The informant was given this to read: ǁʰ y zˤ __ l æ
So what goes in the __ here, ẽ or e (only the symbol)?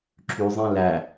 ẽ